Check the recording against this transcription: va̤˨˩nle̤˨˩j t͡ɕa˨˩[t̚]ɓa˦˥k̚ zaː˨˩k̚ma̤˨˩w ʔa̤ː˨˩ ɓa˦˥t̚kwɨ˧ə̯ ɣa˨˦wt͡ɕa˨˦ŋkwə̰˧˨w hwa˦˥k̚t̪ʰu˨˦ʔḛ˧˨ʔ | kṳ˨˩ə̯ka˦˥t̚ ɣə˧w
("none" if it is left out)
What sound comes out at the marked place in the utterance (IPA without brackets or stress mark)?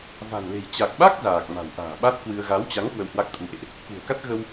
k̚